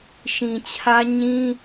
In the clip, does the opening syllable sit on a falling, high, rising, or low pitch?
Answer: low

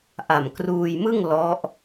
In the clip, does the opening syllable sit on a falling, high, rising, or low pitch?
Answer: low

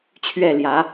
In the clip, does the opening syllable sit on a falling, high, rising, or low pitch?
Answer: falling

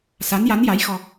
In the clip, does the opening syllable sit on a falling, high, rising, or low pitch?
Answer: rising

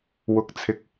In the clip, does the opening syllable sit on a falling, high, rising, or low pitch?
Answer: rising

